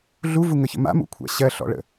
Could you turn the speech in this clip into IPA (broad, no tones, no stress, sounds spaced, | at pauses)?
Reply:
ɮ u v u ŋ ə ç ə̰ m a̰ m ṵ kʷʰ a̰ ɕ ɜ ɬ ɔ̰ ɭ ə̰